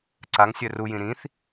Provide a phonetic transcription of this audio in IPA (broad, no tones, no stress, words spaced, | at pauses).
ǀaŋsʲœ rujĩ ɾĩθ